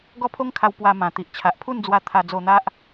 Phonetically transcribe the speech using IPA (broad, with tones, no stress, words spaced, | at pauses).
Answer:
ɡɔ˥˧pʰo˦ŋkʰa˧w pwa˧mã˨˩ t̪i˨ʔt͡ɕʰa˨ʔpʰu˥˧nd͡zwa˧ t̪ʰa˧ d͡zo˧n̪a˦ʔ